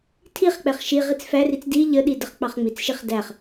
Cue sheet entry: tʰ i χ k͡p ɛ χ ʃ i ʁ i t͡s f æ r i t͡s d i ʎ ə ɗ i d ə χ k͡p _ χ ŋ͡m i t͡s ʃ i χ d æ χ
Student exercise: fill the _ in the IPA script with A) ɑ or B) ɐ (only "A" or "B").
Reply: A